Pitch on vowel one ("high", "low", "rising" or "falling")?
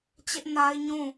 high